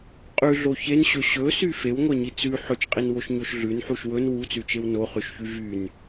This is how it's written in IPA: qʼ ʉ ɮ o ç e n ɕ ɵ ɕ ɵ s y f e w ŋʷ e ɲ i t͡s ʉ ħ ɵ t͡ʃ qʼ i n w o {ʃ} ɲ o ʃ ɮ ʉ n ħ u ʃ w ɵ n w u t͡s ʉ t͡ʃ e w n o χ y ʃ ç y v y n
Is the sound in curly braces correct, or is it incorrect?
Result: correct